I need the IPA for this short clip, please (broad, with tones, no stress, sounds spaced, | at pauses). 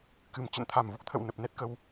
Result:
k ɨ˨˩ m t͡ɕ ə̰˧˨ n t̪ʰ a˨˩ m v u˦˥ k̚ t̪ʰ ə̰˧˨ w n ə˨˩ p̚ n ɛ˦˥ t̚ k ə˧ w